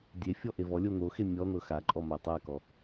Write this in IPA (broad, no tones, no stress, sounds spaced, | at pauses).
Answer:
dʲ e fʲ ɔ ʔ e v ɔ lʲ o n̪ o x e mʲ ɔ n̪ ɤ x a ǃʼ ɔ m a tˤ a k ɔ